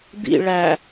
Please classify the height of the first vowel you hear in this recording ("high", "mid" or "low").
high